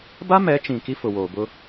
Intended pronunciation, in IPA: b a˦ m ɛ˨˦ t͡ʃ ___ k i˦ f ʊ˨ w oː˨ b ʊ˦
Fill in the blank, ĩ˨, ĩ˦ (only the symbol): ĩ˨